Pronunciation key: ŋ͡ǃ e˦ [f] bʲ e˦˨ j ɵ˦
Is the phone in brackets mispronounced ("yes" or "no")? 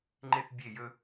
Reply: yes